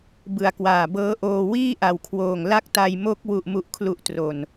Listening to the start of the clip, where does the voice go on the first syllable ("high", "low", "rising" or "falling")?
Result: low